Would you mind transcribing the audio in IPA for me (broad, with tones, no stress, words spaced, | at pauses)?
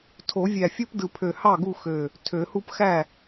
tʰo˨˩˦ vʲæ˧˩fʲo˥pdɯ˧˩pʰø˧˩ hɑ˥˩ɡu˥˩ xø˧˩ | tʰø˨˩˦hu˥p xæ˥˩